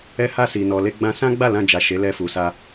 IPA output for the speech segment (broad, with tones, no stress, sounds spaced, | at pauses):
ɛ˧ h a˧ s i˨ n ɔ˨ l e˧ ɡ͡b ã˧ s ã˦ ɡ͡b a˦˨ l ã˧ d͡ʒ a˨ ʃ e˨˦ l ɛ˧ f u˨ s a˧